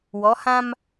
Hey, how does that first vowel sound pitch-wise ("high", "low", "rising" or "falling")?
rising